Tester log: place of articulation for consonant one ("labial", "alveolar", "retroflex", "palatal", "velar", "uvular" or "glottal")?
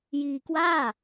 palatal